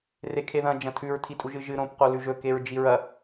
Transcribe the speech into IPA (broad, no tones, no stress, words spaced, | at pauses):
rekʰeðɐ̃ d͡ʒɐ̃tʰʉɹ tʰitʼuʒɨʒɨ ɾõp qolʉʒɵ keɹd͡ʒiɹɐ